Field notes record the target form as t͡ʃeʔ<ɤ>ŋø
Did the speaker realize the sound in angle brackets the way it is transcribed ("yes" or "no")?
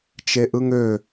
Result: no